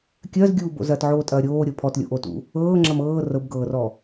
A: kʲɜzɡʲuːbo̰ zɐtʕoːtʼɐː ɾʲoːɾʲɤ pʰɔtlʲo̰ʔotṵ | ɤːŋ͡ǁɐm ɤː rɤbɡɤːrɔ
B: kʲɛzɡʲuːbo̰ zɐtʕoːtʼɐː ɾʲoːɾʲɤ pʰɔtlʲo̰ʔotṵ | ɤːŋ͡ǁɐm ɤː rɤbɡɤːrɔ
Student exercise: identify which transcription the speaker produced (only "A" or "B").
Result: A